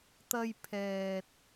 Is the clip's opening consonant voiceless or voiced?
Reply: voiceless